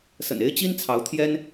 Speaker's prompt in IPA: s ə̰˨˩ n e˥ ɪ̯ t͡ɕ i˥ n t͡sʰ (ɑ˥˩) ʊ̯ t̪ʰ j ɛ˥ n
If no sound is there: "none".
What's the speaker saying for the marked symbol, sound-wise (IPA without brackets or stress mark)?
ɑ˧˥